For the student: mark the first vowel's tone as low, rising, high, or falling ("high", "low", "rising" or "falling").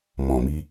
low